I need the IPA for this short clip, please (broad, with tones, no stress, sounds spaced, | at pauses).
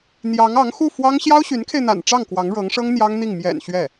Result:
n̪ j ɑ˧˥ ŋ ɑ˧˥ ŋ x u˥˩ f w ɑ˥ ŋ ɕ j ɑ˥ ʊ̯ ɕ y˧˥ n kʰ e˧ ɪ̯ n̪ a̰˨˩ n ʈ͡ʂ ɑ˥˩ ŋ k w ɑ˧˥ ŋ ɻ ɤ˧˥ ŋ ʂ ɤ˥ ŋ n̪ j ɑ˥ ŋ n̪ i˥˩ ŋ m j ɛ̰˨˩ n ɕ ɥ ɛ˥˩